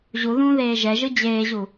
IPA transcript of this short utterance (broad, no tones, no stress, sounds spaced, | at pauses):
ʑ u ð ũː ð eː ʒ ɛ ʒ ɯ d͡ʑ eː ʑ u